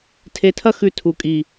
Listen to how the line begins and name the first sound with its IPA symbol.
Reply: tʰ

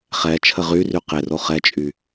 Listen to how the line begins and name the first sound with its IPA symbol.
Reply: χ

